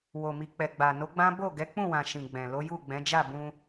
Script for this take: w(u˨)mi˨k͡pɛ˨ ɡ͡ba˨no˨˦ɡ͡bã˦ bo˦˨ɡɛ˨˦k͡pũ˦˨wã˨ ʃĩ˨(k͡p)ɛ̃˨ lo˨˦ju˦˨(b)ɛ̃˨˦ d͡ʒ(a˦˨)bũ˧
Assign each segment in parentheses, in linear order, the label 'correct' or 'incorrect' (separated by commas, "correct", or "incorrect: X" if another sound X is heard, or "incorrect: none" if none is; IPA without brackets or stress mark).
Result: incorrect: o˨, incorrect: ɡ͡b, incorrect: ɡ͡b, correct